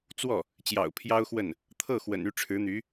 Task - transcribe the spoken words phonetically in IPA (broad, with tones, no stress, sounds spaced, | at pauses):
t͡s w ɔ˥˩ | t͡ɕ j ɑ̰˨˩ ʊ̯ pʰ j ɑ˥ ʊ̯ x w ə˥˩ n | t̪ʰ ɤ˥˩ x w ə̰˨˩ n y˥˩ ʈ͡ʂʰ ɻ̩˧˥ n̪ y˧˥